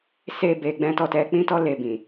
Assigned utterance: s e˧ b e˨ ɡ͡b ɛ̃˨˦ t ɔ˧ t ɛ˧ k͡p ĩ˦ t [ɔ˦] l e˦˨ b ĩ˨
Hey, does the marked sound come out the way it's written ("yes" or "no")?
yes